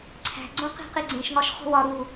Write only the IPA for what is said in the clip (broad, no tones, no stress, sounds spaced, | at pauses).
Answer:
ǀʰ æ̤ ɡ͡ǀ õ q i̤ q i ɡ͡ǀ ẽ ʃ ŋ ɒ ʃ χ o̤ w ɒ ɾ u